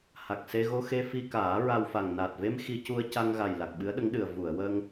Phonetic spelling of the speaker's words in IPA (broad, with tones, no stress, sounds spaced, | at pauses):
h a˨˩ k̚ s e˧ ɣ o˧ x e˧ f i˧ k aː˨˩˦ ɹ a˧ w f a˨˩ ŋ n aː˨˩ t̚ v e˧ m x i˧ c u˧ ə̯ c a˧ ŋ ɣ a˨˩ j l a˨˩ k̚ ɓ ɨ˧˥ ə̯ ɗ ə˧˥ ŋ ɗ ɨ˨˩ ə̯ v u˨˩˨ ə̯ w əː˧ ŋ